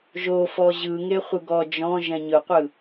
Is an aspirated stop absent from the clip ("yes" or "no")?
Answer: yes